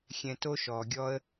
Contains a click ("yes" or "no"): no